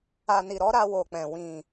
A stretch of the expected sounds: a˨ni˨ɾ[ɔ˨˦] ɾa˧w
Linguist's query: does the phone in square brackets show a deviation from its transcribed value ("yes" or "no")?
no